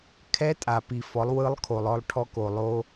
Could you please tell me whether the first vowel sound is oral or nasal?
oral